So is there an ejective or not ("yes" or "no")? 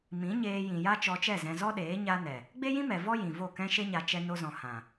no